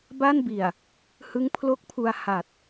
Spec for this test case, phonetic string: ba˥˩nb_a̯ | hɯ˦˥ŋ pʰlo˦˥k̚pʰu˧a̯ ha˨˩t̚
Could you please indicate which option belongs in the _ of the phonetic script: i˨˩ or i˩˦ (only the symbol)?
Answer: i˨˩